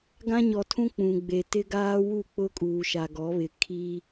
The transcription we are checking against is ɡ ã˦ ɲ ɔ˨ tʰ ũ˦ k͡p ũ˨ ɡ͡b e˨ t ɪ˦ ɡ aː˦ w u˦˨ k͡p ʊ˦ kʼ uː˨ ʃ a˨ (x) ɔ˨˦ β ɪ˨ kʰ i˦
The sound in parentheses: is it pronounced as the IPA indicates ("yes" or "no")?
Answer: no